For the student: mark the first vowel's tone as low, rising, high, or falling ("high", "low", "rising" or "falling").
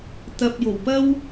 low